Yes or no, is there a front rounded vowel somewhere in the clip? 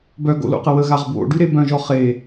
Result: yes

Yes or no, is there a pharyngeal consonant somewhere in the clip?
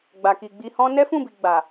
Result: no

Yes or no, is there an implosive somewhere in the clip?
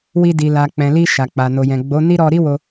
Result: no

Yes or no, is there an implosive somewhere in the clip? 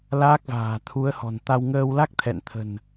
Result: no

